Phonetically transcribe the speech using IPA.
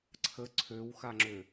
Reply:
ǀʰ ə ǀʰ ø w x a ŋ͡ǁ ø

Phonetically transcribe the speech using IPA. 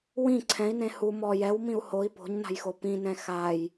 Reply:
w ĩ ǀʰ ɛ̃ i̯ n ẽ h u m ɔ j ɛ w m ĩ u̯ h o i̯ p o̤ ɲ n a̤ j x o p ĩ n ɛ̃ x a j

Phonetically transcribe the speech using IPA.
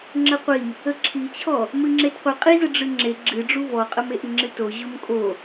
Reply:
ŋ͡ǁ ə qʷ i | ə ǁʰ i t͡ɕʰ ɔ | m ɨ ŋ͡ǁ e t qʷ ɨ qʼ i z ə ɖ͡ʐ ɨ ŋ͡ǁ e ɡ͡ǁ ɨ ɖ͡ʐ u v ɔ qʼ ə m e ʔ ɨ ŋ͡ǁ ɨ t o ʑ u m kʼ o

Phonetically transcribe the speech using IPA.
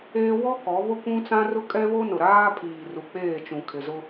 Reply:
eː˦ w ɔ˦ k ɔ˨˦ β ʊ˦ kʷ ũ˦ t͡s ã˦ r ʊ˦ kʼ ɛ˦ β o˦ n ʊ˨ ɾ aː˦ pʰ iː˨ r u˨ k͡p eː˦˨ t͡ʃ ũ˨ kʰ ɪ˨ z ʊ˦

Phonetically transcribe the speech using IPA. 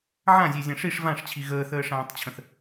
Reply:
ʕ ã zʲ e zʲ ã ʂ i ʂ v ã ʂ t͡ɕʰ i ɣ əː θ əː ʂ ãː tˤ t͡ɕʰ ə̃ θ

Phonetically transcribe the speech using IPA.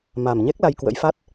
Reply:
m a˨˩ m ɲ ɛ˦˥ k̚ l a˧ j k w ə̰˧˥ j f a˦˥ t̚

